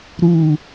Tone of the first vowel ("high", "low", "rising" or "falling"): falling